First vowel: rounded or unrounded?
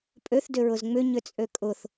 rounded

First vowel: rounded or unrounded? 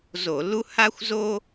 rounded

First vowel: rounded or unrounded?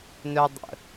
rounded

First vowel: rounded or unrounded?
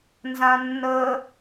unrounded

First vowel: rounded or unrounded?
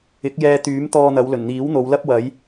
unrounded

